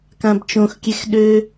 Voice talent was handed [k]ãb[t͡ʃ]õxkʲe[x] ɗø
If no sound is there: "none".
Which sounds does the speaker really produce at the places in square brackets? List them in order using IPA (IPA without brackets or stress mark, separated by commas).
k, t͡ʃ, x